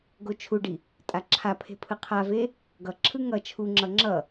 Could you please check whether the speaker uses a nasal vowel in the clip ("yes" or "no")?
no